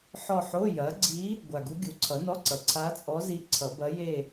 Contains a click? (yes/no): yes